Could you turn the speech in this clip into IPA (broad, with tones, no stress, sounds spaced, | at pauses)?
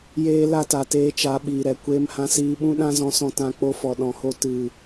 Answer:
j eː˦ l a˦ t a˨ t eː˧ t͡ʃ a˨˦ ɓ iː˨ ɾ ɛ˨ kʷ eː˧ m h ã˧ s iː˧ ɓ ũ˦ ɗ ã˦ z ɔ̃˧ s ɔ̃˧ t ã˧ k͡p o˧ f ɔ˨ ɗ ɔ̃˨ h o˧ t ɨ˨